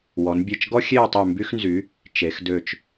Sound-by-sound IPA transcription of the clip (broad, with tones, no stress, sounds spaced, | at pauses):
w ɔ˩˧ n bʲ e˧˩ t͡ʃ ɡ ɔ˥ xʲ e˥˧ w tˤ y˧˩ m b y˧ x n z y˩˧ | t͡ʃ e˩˧ x d ø˧˩ t͡ʃ